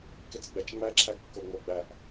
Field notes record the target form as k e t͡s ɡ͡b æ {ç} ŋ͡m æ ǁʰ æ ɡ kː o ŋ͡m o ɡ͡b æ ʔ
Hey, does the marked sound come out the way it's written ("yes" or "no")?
no